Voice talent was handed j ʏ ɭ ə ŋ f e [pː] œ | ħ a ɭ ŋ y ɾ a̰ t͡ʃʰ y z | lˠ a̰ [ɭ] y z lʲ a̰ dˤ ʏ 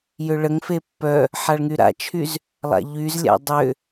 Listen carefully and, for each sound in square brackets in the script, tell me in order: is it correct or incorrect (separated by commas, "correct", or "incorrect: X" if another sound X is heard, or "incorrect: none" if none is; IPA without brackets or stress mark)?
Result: correct, incorrect: ʎ